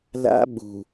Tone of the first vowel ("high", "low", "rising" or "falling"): high